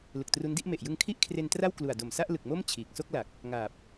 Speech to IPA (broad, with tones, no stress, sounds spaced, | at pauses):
l ɯ˨˩ k̚ t r u˦˥ n d i˦˥ ʔ m e˨˩ ʔ j ɯ˧ ŋ kʰ i˥˩ ʔ kʰ r e˧ n t r a˥˩ w k l u˨˩ a̯ d o˨˩ m s a˥˩ ʔ l ɯ˨˩ k̚ m o˥˩ m t͡ɕʰ iː˨˩ k̚ s o˥˩ k̚ l a˨˩ k̚ | ŋ aː˨˩ p̚